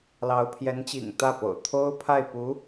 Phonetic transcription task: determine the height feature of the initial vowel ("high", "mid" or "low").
low